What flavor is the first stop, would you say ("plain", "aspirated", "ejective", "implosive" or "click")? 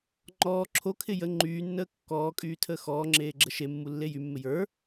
click